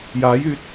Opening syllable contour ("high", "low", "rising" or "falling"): rising